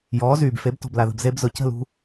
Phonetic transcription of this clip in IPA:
j ɔː˩˥ z yː˩ b f e˩˥ b t ɔ̤˩ b l a˩ ð ə̤˩ b z e˧ b z ʊ˩ c ə̤˥˩ l ṳ˧

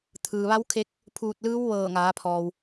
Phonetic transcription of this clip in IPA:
t̪ʰ ɯː˩ ʋ a˧˥ w kʰ e˧ k̚ | pʰ uː˧˩ t̚ l ɯː˧˥ w ʋ ɤː˧˩ ŋ aː˩˧ pʰ ɔː˩ w

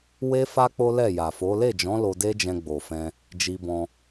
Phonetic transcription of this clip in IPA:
w e˦ f a˦ k͡p o˦ l ɛ˦˨ j a˨ f o˨˦ l e˦˨ d͡ʒ ɔ̃˨˦ l o˧ d e˦ d͡ʒ ɛ̃˧ ɡ͡b o˨ f ɛ̃˧ | d͡ʒ i˧ b ɔ̃˧

